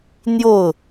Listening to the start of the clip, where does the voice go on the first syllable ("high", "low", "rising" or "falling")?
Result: falling